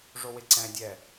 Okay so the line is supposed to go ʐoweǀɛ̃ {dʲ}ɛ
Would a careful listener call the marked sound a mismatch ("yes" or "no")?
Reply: no